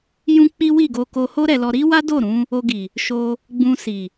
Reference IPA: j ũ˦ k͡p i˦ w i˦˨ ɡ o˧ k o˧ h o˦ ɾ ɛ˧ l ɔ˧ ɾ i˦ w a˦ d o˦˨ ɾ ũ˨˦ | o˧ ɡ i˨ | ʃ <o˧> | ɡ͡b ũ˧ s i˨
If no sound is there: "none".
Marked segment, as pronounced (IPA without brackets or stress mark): o˧